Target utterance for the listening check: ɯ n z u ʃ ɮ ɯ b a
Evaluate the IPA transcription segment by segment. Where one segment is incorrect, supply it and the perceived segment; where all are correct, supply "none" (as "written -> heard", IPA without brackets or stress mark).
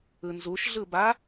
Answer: none